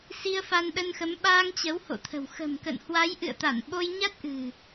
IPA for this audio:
s i˧ ə̯ f a˧ n ɗ ə˧ n x ə˨˦ m ɓ aː˧ ŋ t͡ɕ ə˨˦ w h o̰˧˨ t̪ʰ ə̤˨˩ w x ə̤˨˩ m k ə̰˧˨ n h w a˨˦ j ʔ ɨ̰˧˨ ə̯ t̪ a˧˩ n ɓ o˧ j ɲ a˦˥ t̚ ʔ ɨ̤˨˩

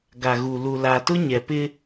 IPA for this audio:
ɡ a˨ ɣ u˨ l u˨ l a˨ t ʊ˦ ɲ ɛ˨ p ɪ˦

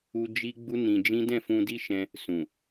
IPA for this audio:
u˦ d͡ʒ i˦ ɡ͡b u˦ n ĩ˧ d͡ʒ ĩ˦ d ɛ̃˦˨ f ũ˧ d i˦ ʃ ɛ̃˧ | s ũ˨

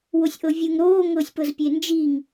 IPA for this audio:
w o sʲ ʔ ɤ vʲ ɯ ŋ ɾ oː ŋ ɤ sʲ p ɤ z pʲ e n d͡ʒ i ŋ

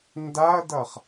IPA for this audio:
n d a ɐ̯ d ʌ χ

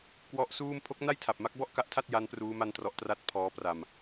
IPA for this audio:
k w ɔ˦˥ ʔ s uː˥˩ m pʰ o˦˥ k̚ n a˥˩ j tʰ a˨˩ p̚ m a˦˥ k̚ b ɔ˥˩ ʔ k a˦˥ ʔ tʰ a˥˩ t̚ j a˦˥ n p r uː˦˥ m a˥˩ n t r ɔ˦˥ ʔ t r a˦˥ t̚ pʰ ɔː˦˥ p r a˧ m

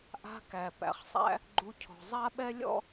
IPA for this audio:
ʔ a̤˦ k æ˨ p æ̰˨ χ sˤ æ̰˦ | ɡ͡ǃ u˧ cʰ ɔ̤˨ zˤ a˦ ɓ ɛ˦ lʲ ɔ̰˦

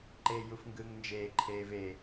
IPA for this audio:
ǃ eː j u f ŋ ɡ ɯː ŋ n d͡ʒ eː ǃʰ eː v e

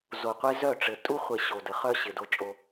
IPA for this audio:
z o˨ qʷ e˦ z œ˦˨ ʈ͡ʂ ɘ˨ tʼ u˦ χʷ e˨ ɕ o˨ d ə˨ χ œ˦ ɕ ɪ˨ d o˦ t͡ʃʼ o˦

